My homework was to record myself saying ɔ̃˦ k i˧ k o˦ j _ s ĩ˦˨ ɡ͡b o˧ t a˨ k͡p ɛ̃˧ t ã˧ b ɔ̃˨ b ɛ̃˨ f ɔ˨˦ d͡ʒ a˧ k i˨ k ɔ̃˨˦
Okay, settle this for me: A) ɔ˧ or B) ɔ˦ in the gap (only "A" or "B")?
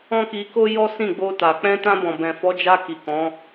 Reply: B